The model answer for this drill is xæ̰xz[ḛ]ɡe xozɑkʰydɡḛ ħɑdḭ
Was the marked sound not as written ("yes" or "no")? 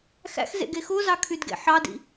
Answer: no